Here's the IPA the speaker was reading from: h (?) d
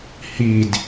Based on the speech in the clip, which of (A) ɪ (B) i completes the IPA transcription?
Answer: B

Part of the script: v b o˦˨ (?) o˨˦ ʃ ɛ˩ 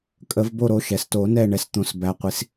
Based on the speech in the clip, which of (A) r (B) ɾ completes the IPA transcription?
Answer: B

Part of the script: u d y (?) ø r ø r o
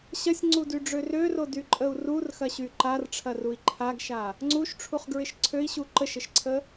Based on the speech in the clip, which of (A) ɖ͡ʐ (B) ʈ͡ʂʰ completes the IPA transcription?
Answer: A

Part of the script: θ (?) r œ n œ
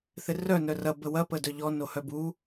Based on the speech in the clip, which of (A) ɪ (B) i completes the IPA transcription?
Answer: A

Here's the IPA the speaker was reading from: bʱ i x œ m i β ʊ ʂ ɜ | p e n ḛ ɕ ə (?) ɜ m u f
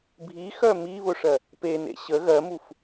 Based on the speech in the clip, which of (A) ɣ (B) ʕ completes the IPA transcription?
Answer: A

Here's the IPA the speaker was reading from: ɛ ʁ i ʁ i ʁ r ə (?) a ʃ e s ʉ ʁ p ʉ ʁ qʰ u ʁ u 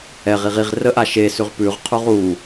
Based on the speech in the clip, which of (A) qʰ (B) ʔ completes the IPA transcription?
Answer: B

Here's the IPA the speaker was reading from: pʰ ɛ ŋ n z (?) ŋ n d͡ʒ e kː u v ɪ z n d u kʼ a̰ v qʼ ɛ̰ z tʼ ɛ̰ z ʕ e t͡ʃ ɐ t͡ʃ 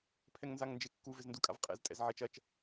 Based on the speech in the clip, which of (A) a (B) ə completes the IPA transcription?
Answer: A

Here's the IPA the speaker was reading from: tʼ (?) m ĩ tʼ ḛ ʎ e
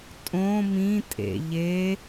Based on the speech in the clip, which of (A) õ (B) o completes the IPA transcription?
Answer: A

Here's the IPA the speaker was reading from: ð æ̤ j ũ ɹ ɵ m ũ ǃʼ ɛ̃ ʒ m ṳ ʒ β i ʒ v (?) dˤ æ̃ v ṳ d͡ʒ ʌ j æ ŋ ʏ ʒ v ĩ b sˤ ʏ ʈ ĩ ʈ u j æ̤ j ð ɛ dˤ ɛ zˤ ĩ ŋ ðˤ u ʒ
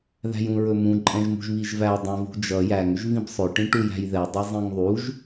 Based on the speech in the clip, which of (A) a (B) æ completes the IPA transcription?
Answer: B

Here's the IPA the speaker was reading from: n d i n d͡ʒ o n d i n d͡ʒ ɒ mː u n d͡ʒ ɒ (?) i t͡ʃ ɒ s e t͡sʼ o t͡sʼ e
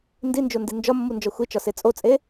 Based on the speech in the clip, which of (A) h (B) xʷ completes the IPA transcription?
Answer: B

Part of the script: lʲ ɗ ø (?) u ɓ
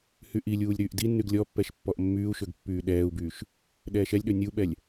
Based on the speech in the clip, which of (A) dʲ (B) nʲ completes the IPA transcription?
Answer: B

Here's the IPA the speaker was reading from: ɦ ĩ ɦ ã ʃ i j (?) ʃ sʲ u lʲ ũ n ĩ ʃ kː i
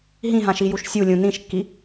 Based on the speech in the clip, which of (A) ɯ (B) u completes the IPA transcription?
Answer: B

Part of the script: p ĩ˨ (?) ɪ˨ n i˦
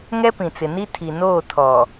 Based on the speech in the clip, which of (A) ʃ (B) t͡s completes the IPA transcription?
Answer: B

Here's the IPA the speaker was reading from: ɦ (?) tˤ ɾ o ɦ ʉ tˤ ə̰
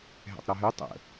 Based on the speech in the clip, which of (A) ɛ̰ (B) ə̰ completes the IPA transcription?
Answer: A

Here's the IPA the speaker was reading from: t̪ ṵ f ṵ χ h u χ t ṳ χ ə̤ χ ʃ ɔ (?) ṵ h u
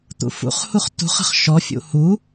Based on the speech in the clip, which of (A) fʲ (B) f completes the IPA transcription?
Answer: A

